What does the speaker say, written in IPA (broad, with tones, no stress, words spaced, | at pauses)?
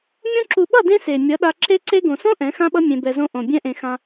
mʲõ˧ǁu˨ɓʌ˦˨ dẽ˦se˨ mʲʌ˨˦ɗa˧ǁe˦ǀe˦ ɡõ˨sõ˦ ʔɛ̃˨˦xã˦ɓʌ˦ mʲẽ˧bɛ˧zõ˦ ʔõ˨ bʲɛ̃˧ʔẽ˨ xã˧